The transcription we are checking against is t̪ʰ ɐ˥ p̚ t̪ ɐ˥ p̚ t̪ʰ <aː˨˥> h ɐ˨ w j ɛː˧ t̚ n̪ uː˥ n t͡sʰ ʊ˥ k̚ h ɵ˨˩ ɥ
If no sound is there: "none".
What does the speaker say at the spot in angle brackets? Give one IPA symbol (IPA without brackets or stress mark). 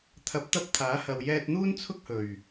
aː˨˥